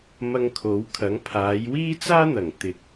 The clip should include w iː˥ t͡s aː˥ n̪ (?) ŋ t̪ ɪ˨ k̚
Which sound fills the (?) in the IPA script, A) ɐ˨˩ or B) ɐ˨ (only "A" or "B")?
A